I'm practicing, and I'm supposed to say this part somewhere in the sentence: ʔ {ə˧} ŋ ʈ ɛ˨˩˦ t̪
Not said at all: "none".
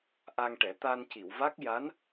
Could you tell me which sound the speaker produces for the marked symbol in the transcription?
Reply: a˧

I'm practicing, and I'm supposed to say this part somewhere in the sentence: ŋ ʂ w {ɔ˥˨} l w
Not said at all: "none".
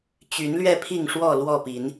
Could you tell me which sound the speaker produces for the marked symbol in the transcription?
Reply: ɔ˥˨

